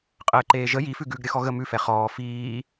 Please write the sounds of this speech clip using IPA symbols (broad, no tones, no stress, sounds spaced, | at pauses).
qʼ əː ǃ eː ʒ ə j i f ʉ ɡ ʉ ɡ ɾʲ ə x ɔ ɣ ə m ʉ f ɛ χ ɔː f iː